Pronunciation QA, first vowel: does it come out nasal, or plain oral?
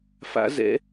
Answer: oral